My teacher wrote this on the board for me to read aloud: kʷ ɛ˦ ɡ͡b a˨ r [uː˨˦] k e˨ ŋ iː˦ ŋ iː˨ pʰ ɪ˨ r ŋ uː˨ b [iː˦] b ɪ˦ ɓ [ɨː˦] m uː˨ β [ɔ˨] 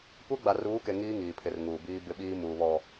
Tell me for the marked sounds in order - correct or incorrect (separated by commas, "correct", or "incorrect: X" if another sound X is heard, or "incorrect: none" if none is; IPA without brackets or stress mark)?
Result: correct, correct, incorrect: iː˦, correct